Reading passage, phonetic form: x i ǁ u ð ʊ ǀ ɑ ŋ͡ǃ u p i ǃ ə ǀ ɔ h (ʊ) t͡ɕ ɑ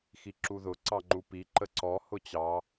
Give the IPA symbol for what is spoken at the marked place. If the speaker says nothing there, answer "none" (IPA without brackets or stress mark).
ʊ